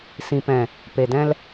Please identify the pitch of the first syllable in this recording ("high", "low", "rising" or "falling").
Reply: low